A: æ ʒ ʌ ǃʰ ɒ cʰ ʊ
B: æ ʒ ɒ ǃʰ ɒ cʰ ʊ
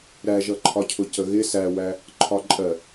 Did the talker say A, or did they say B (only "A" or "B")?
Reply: A